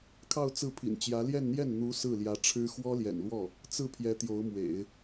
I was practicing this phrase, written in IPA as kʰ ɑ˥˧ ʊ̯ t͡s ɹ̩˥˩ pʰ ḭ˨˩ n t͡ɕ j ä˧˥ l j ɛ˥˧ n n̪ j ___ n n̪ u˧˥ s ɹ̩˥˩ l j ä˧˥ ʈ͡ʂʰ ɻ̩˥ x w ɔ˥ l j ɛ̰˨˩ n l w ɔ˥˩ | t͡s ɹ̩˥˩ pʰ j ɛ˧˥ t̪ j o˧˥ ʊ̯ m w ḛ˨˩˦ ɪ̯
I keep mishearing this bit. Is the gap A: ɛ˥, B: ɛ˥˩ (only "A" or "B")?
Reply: B